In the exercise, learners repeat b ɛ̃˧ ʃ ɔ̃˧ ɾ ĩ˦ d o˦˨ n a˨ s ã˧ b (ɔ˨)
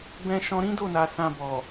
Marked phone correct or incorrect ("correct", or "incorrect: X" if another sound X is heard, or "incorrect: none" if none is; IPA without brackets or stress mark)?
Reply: correct